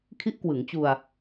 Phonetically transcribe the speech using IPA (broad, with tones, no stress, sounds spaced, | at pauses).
kʰ i˦˥ ʔ k w ɯ˩˦ ŋ t͡ɕ u˧ a̯